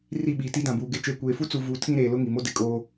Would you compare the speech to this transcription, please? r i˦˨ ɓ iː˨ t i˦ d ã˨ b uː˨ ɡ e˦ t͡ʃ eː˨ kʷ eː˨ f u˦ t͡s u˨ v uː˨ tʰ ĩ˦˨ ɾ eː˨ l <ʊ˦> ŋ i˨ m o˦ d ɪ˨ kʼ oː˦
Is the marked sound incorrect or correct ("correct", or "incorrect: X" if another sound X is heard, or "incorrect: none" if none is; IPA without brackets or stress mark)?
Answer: correct